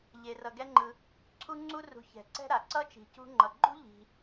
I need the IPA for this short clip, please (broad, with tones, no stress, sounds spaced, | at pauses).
ʎ e˨ r ʌ˨ ɡ ɛ˦ ŋ͡ǃ ɯ˨ | ǀʰ u˥ ŋ͡ǀ u˥ r ṳ˨ ç ɛ̤˩ ǀ ɛ̤˥ ɾ a˩ ǀ ʌ˥ t͡ʃ i̤˨ c ṳ˦ ŋ͡ǃ ʌ˨ ɡ͡ǃ ṳ˥ ʎ i̤˨